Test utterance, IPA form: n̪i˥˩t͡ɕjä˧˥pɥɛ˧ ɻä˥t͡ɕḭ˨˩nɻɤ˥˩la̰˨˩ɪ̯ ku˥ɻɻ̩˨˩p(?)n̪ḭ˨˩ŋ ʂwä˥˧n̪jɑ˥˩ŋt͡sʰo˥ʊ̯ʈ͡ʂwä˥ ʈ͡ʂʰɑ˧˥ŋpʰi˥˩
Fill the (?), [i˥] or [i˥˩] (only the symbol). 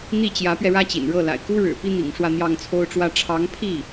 i˥